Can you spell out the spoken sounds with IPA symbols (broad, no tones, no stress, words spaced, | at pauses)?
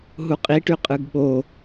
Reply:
ɦuqʼiʈy qʼɯɡɓo